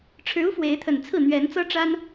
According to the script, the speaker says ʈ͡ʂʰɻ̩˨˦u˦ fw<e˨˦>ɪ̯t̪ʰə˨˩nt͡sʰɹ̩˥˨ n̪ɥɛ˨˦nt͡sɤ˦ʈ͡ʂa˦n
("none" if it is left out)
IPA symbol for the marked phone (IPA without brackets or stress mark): e˨˦